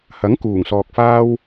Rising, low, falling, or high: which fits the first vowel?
rising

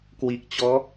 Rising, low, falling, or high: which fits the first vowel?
low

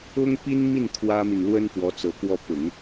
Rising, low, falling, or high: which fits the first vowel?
high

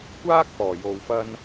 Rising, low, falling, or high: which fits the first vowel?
high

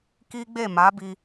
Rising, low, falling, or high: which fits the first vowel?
high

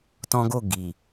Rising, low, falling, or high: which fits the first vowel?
high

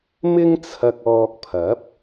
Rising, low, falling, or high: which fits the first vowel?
high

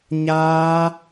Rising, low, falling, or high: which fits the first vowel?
high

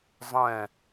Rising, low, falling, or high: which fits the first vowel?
falling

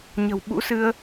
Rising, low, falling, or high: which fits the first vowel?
low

